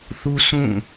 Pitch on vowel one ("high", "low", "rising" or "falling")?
high